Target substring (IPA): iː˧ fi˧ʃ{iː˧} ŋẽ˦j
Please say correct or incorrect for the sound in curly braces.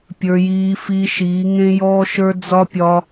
incorrect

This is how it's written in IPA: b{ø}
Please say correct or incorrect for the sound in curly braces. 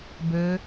correct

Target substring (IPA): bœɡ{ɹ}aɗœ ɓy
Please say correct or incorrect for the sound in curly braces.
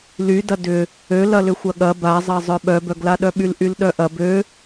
incorrect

